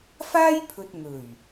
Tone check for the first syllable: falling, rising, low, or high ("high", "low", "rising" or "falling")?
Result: high